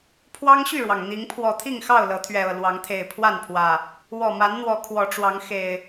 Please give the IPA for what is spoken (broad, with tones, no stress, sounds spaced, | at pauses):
pʰ w ɑ˦ ŋ ɕ y˥˨ ɻ w ɑ˩ ŋ n̪ i˨˦ ŋ pʰ w ɔ˨˩ t̪ʰ i˥˨ ŋ x ɑ˥˨ ʊ̯ l ɤ˨˦ t̪ʰ ɥ ɛ˨˩ ɤ˥˨ l w ɑ˨˦ ŋ t̪ʰ e˨˩ ɪ̯ pʰ w a˥˨ n pʰ w ä˨˩ | w ɔ˨˩ m a˨˦ n n̪ w ɔ˨˦ kʰ w ɔ˨˦ ʈ͡ʂ w ɑ˨˦ ŋ x e˨˩ ɪ̯